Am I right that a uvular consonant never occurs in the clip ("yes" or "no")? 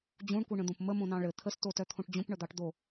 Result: yes